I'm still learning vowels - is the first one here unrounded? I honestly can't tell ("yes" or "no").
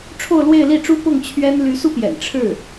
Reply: no